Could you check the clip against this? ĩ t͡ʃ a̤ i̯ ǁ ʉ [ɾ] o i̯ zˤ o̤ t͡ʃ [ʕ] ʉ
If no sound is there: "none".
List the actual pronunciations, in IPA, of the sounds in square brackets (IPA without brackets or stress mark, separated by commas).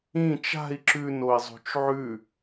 n, ʕ